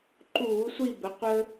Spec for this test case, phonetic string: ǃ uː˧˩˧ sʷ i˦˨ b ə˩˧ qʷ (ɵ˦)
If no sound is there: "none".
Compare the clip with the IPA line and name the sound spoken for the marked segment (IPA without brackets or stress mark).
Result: ə˦